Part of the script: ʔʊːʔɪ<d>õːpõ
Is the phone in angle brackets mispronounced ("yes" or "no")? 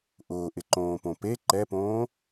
yes